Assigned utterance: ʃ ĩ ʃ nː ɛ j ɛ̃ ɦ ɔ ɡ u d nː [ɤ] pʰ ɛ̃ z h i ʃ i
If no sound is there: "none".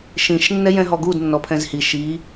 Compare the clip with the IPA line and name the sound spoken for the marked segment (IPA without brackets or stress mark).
ɔ